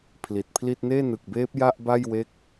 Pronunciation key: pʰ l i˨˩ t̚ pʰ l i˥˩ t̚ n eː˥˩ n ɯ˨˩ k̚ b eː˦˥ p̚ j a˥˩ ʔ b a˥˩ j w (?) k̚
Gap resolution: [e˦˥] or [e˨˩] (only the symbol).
e˦˥